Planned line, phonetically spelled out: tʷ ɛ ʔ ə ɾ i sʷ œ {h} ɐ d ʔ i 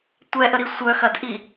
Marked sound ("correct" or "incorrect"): incorrect